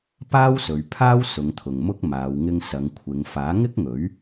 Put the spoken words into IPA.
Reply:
p aː˥ w s ɵ˨˧ ɥ pʰ aː˥ w s ʊ˨˧ ŋ t̪ʰ ʊ˨ ŋ m ʊ˥ k̚ m aː˨˧ w ŋ ɪ˧ ŋ s ɐ˨˧ ŋ kʷʰ ɪ˨˧ ŋ f aː˨˥ ŋ ɪ˥ k̚ ŋ ɵ˨˥ ɥ

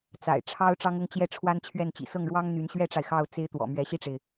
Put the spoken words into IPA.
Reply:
t͡s a̰˨˩ ɪ̯ ʈ͡ʂʰ ɑ˥ ʊ̯ ʈ͡ʂ ɑ˥ ŋ ʊ˥ ŋ t͡ɕ j ɛ˥˩ ʈ͡ʂʰ w a˥ n t͡ɕʰ ɥ ɛ˥˩ n t͡ɕ ḭ˨˩ s ɤ˥˩ ŋ ɻ w ɑ˥ ŋ n̪ y˧˥ n ɕ ɥ ɛ˥ ʈ͡ʂ a˨ ɪ̯ x ɑ˥˩ ʊ̯ t͡s e˥ ɪ̯ t̪ w ɔ̰˨˩ m ɥ ɛ˧˥ ɕ i˥˩ ʈ͡ʂ e˩ ɪ̯

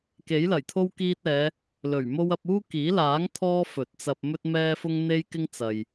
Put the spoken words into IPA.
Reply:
k e˨˥ j l ɐ˨˩ j t̪ʰ o˥ w k iː˧ t̚ ɛː˨˧ | l ɵ˨˩ ɥ m o˥ w ɐ˧ p̚ uː˥ k iː˨˥ l aː˨˥ ŋ t̪ʰ ɔː˥ f ɵ˨˥ t̚ t͡s ɐ˧ p̚ m ɵ˥ t̚ m ɛː˥ f ʊ˥ ŋ n̪ e˥ j k ɪ˥ ŋ t͡s ɐ˨ j

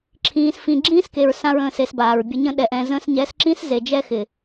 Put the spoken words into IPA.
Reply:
ǁʰ ĩː˧ s f ĩ˧ ɡ͡ǁ ĩː˦ s k e˨ ɹ s ã˦ ɹ ə̃ː˦˨ s e˧ s b aː˨ ɹ bʲ ə˧ ɲ ə̃˦ ɗ ɛ˧ ʔ ɛ̃˧ z ə̃ː˧ s ɲ ɛ˨˦ s ǁ ĩ˦ s z e˨ d͡ʒ ɛ˦ x ɪ˨

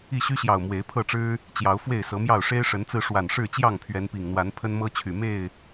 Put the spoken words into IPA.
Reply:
i˥˨ ɕ y˦ ɕ j ɑ˨˩ ʊ̯ m w e˨˦ ɪ̯ pʰ ɤ˥˨ ʈ͡ʂ ɻ̩˦ | t͡ɕ j ɑ˨˦ ʊ̯ f w e˥˨ ɪ̯ s ɤ˨˦ m j ɑ˥˨ ʊ̯ ʂ e˦ ɪ̯ ʂ ə˨˦ n t͡s ɹ̩˧ ʂ w a˨˩ n ʂ ɻ̩˥˨ t͡ɕ j ɑ˥˨ ŋ pʰ ɥ ɛ˨˦ n p i˨˩ ŋ n̪ w a˨˦ n pʰ ə˦ n m ɤ˦ t͡ɕʰ y˨˩ m e˥˨ ɪ̯

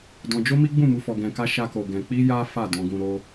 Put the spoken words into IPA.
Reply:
d ɔ̃˧ d͡ʒ o˦ m i˦ ɡ͡b ũ˦˨ m u˧ f ɔ˧ ɡ ɛ̃˧ k a˦ ʃ a˦ k o˧ ɡ ɛ̃˧ k͡p i˦ j a˦ f a˦˨ d ɔ̃˧ ɡ ũ˧ ɾ o˦

